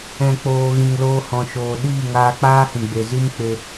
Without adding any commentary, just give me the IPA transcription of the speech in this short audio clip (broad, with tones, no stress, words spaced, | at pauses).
ɛ̃˨k͡poː˨ ɣĩ˨ŋloː˧hɔ̃˨ʃoː˨ ɗiː˦˨ŋaː˧k͡paː˦ hĩ˨ɡ͡be˨zi˦mk͡pe˧